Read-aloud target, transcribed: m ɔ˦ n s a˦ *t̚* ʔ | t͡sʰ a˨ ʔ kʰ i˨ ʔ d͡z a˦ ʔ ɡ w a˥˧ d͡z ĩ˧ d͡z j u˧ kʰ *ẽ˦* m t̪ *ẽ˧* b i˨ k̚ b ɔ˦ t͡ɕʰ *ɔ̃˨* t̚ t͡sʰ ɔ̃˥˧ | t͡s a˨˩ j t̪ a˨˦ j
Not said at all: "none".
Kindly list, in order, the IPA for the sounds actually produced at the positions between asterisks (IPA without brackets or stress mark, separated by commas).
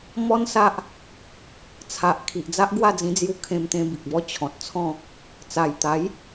none, ẽ˧, ẽ˧, ɔ̃˨